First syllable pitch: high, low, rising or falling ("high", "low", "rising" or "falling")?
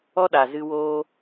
high